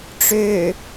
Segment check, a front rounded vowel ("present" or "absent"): present